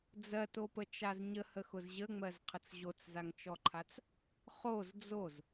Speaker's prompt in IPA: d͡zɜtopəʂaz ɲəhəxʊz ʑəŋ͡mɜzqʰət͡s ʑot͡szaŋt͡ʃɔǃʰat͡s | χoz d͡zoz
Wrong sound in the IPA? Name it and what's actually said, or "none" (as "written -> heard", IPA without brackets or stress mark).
ʂ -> t͡ʃ